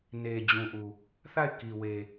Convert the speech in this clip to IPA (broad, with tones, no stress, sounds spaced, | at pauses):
n e˨ d͡ʑ ũ˨ ʔ u˨ | θ a˦˨ ɪ̯ k i˨ w e˨